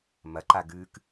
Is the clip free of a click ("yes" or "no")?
no